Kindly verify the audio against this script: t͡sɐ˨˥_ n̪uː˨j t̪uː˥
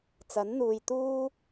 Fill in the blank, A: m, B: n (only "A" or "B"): B